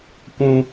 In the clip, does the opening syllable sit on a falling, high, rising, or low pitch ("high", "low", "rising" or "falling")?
high